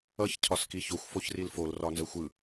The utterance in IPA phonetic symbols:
ʌç cʰɒskiçoxʷ foçrilfol rɒnzəxʷɯ

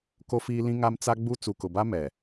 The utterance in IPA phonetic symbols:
ko˦fiː˦lĩ˦ŋa˦m t͡sa˦ɡ͡bu˦ t͡su˨kʊ˨ba˦ mɛ˨

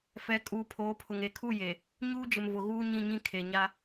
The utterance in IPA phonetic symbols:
fɛ˨˦ kʼuː˨pʰoː˨˦pʰʊ˨ŋ e˨kʰu˦˨je˨ | ɲuː˦d͡ʒɪ˨mvʊ˨ ɣuː˦ɲĩ˦˨ɲĩ˦ kʰe˨ ɲa˦

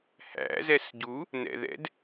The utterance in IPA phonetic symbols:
hæ̰ zɛsɟu | nɛ̰ðɛ̰d

